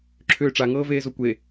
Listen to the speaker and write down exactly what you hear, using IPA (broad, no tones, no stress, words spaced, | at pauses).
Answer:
ǁʰʏːʈ͡ʂa ŋɤːveːzokʷe